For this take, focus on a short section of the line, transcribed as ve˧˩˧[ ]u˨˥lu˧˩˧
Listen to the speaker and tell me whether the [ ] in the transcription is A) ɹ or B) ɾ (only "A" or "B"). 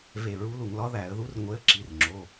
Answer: A